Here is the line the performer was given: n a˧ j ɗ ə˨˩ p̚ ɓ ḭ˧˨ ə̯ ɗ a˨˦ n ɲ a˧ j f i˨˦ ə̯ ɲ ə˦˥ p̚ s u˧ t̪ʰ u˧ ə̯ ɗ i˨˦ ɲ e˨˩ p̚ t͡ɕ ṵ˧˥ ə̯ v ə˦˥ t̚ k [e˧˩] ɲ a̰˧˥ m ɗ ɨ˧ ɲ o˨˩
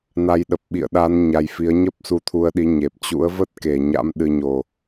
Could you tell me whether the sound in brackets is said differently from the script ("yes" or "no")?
no